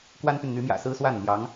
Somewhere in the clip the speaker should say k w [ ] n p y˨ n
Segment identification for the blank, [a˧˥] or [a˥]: a˥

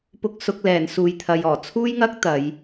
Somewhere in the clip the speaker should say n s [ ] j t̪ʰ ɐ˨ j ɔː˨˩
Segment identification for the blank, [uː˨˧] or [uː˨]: uː˨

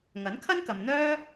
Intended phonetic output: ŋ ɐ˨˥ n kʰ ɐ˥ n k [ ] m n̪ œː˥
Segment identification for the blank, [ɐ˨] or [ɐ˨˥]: ɐ˨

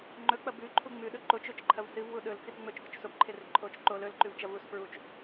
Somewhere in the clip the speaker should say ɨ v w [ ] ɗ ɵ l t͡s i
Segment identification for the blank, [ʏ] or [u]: u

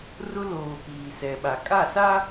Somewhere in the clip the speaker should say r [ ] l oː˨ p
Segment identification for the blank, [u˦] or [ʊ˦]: ʊ˦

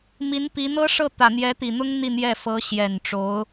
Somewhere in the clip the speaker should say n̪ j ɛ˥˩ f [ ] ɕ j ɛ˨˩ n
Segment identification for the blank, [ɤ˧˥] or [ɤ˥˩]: ɤ˧˥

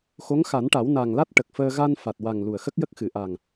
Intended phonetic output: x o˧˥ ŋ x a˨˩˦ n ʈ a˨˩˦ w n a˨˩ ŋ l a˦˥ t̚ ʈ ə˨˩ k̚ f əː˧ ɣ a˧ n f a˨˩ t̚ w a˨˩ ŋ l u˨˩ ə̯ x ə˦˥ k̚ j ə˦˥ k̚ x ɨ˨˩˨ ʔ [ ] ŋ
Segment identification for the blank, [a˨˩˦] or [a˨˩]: a˨˩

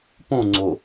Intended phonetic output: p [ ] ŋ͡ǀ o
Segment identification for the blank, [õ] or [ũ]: õ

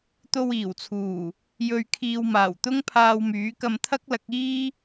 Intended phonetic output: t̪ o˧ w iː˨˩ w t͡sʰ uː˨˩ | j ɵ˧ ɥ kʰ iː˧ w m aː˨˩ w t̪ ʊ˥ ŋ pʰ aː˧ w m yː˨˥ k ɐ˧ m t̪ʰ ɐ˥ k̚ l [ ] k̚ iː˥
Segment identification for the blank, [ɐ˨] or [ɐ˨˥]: ɐ˨˥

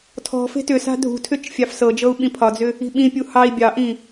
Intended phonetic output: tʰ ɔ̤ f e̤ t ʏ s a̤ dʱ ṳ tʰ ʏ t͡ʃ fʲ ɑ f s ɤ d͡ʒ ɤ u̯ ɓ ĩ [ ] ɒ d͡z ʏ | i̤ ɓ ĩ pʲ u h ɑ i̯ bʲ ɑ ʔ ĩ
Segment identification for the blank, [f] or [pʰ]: pʰ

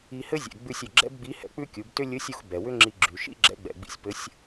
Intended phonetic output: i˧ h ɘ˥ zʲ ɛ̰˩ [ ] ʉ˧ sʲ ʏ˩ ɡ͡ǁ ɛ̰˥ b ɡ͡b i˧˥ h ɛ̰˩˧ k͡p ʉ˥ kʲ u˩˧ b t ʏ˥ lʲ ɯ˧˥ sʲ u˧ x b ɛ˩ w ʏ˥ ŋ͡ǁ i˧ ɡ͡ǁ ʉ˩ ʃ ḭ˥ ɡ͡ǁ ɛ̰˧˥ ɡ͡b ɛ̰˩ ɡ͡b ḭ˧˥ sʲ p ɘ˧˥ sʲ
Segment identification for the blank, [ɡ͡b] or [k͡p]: ɡ͡b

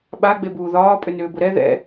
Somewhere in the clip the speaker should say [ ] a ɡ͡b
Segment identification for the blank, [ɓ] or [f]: ɓ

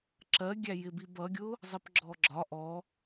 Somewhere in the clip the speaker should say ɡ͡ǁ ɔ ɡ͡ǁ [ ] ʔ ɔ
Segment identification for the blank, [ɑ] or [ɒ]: ɒ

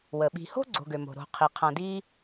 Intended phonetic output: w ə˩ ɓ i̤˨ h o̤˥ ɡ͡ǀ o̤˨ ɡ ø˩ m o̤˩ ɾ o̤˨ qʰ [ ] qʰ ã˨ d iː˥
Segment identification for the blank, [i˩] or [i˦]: i˩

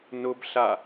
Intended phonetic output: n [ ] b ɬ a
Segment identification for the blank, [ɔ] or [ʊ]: ʊ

